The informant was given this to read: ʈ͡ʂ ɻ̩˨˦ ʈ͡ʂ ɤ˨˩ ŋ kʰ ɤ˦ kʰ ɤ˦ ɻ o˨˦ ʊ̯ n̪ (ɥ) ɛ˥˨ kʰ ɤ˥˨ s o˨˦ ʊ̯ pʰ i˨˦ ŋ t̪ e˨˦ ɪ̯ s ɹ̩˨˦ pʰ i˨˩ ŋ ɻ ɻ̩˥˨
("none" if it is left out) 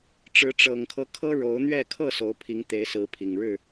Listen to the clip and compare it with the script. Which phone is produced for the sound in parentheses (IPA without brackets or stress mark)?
ɥ